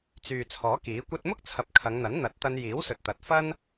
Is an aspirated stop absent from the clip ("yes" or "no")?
no